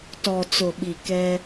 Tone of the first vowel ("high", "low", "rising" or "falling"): low